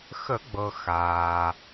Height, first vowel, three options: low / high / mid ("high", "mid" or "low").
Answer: mid